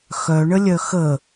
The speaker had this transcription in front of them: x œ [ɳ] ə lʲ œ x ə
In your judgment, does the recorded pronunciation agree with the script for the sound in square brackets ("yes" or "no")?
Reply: yes